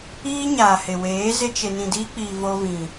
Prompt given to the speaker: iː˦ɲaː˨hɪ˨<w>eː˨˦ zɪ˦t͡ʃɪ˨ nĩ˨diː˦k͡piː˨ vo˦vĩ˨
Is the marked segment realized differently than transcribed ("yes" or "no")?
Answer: no